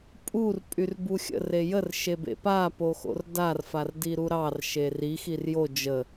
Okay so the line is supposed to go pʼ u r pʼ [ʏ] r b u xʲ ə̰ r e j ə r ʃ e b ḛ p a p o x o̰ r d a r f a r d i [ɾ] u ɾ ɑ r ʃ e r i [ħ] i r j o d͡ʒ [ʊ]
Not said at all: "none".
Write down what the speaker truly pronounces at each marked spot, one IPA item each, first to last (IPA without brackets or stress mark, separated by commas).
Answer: y, ɾ, x, ə